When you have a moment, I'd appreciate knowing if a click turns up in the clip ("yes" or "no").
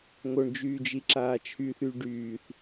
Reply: yes